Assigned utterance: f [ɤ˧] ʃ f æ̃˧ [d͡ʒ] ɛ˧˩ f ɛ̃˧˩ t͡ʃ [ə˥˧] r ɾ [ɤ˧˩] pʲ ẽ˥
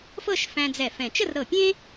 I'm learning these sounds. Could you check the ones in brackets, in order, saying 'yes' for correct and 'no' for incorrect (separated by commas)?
no, no, yes, yes